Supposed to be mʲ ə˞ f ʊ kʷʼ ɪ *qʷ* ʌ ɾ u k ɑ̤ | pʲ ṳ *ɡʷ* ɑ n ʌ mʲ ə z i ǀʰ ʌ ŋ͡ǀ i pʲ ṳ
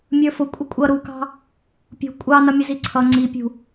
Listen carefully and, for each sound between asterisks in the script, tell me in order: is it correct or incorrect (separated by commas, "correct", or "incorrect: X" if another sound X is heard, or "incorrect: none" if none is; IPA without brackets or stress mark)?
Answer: incorrect: kʷʼ, incorrect: kʷʼ